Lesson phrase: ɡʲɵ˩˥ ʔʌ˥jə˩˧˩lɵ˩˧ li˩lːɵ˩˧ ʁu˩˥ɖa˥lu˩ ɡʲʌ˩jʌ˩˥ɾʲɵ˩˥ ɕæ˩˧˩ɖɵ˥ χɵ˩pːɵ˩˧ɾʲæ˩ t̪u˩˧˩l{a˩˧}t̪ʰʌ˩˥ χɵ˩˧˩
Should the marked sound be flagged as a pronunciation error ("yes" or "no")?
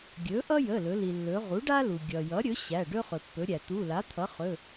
yes